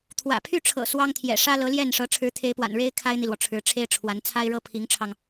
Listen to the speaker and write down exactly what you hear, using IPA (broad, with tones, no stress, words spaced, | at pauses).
t̪ʰwä̰˨˩ pʰy˥˩ʈ͡ʂʰɤ̰˨˩ swɑ˥ŋt̪ʰjɛ̰˨˩ ʂä˥lɤ˧˥ ljɛ˥˩nʂɤ˧˥ ʈ͡ʂʰɻ̩˧˥t̪ʰe˧˥ɪ̯pwa̰˨˩n ɻe˥ɪ̯ kʰa˥ɪ̯n̪i˨lwɔ˩ ʈ͡ʂʰɻ̩˧˥ʈ͡ʂʰe˥ɪ̯ʈ͡ʂʰwa˧˥n t͡sʰa˥ɪ̯ɻɤ˥ pʰi˧˥ŋʈ͡ʂʰɑ˧ŋ